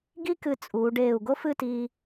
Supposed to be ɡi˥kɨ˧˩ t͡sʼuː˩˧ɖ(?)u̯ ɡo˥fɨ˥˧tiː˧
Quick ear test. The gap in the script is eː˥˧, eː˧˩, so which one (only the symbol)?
eː˧˩